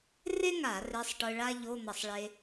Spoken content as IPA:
r e˥ ŋ a˧˩˧ r e˧˥˧ sˤ ʈ ɯ˧ ɭ a˥ ʎ o˧˥˧ n̪ ʌ˧˩˧ sˤ ɭ e˧

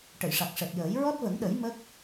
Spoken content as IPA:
ʈ ə˨˩˨ j ʂ a˨˩ k̚ ʂ ɛ˨˩ t̚ j əː˨˩˦ j ɹ ɔ˦˥ t̚ v ə˨˩˦ ŋ ɗ ə˨˩˦ j m ə˦˥ k̚

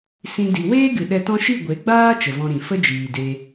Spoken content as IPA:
s ĩ˧ d i˨ w eː˦ ɡ ɨ˨ ɗ ɛ˧ t ɔ̃˦ ʃ i˦˨ ɡʷ e˨˦ ɡ͡b aː˦ t͡ʃ ə˨ v ɔ̃˧ ɾ ĩ˨ f ə˦ d͡ʒ iː˨ d e˧

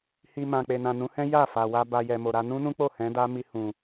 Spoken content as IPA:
h i˧ m ã˨ k͡p e˨ n ã˨ n ũ˨˦ h ɛ̃˦ j a˦˨ f a˨ w a˧ b a˧ j ɛ˨ m o˨ ɾ a˧ n ũ˦ n ũ˦ k͡p o˦˨ h ɛ̃˨˦ d a˦ m i˧ h ũ˨

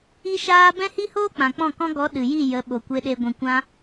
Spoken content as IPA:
i˦ ʃ aː˦ b ɛ̃˦ h i˦ h oː˦ k͡p ã˨ k͡p ɔ̃˦˨ k ɔ̃˦ ɡ ɔ˨˦ ɗ ɨ˨ j i˦˨ j ə˨˦ ɓ o˨ kʷ e˧ ɗ e˧ ɡʷ ɛ̃˧ kʷ ã˦

